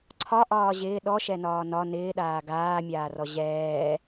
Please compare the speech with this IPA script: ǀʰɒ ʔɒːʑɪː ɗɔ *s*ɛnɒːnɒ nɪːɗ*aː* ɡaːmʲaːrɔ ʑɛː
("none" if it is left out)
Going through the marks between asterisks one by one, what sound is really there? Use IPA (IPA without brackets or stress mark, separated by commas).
ʃ, aː